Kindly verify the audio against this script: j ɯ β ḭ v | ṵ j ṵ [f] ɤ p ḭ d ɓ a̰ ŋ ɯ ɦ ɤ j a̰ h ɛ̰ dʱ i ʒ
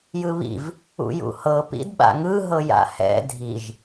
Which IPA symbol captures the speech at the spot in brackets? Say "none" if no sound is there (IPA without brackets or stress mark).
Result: h